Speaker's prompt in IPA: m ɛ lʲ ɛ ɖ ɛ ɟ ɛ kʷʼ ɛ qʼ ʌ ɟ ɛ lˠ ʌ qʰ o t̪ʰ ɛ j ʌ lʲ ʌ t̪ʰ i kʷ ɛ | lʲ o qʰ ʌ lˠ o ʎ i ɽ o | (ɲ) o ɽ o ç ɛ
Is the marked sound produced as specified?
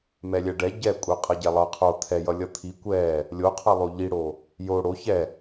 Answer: no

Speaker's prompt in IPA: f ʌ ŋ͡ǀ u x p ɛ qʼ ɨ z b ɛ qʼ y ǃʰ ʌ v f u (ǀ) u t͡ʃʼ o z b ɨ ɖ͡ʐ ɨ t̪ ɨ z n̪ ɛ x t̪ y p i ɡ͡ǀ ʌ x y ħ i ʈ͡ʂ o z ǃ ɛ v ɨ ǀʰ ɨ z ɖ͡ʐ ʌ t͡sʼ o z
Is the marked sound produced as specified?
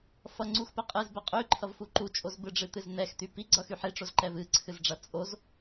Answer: no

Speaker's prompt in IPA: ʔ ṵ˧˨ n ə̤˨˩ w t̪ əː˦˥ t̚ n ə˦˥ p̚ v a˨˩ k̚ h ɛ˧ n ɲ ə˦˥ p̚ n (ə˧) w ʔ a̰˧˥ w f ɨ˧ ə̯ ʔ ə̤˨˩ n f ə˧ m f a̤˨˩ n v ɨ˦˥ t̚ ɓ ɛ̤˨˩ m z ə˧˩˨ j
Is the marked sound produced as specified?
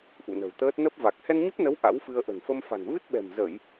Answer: no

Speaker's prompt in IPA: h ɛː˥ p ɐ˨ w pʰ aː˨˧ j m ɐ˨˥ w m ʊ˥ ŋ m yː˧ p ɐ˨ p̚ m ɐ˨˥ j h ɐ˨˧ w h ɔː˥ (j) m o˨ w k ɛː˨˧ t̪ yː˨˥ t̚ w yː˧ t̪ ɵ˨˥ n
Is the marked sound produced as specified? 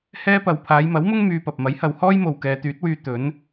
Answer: yes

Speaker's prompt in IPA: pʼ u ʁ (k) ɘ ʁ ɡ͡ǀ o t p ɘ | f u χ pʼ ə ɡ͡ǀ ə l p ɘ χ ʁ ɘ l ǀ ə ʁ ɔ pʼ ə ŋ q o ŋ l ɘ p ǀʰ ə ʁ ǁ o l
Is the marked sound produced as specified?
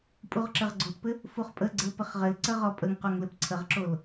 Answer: no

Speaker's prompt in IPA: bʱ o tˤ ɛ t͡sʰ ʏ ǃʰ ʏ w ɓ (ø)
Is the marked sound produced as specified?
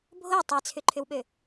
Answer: yes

